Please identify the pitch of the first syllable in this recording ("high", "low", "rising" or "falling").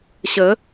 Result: rising